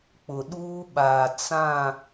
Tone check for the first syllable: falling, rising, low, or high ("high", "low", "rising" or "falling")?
low